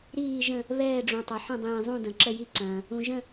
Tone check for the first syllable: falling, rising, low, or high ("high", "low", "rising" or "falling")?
falling